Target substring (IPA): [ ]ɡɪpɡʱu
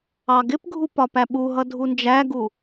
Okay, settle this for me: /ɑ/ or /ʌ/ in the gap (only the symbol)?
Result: ɑ